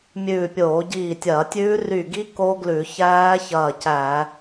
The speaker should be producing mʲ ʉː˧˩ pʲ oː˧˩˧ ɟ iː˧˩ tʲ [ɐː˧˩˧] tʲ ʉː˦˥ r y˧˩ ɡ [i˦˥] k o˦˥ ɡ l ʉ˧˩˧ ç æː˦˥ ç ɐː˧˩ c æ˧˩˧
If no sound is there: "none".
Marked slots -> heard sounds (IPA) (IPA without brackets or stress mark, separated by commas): ɐː˧˩˧, i˦˥